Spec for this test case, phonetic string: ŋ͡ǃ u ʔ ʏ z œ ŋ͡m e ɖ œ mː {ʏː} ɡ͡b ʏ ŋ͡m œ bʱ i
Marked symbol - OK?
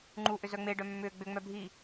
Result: yes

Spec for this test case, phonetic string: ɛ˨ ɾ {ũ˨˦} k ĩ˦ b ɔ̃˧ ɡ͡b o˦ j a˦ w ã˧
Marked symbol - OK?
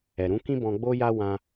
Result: yes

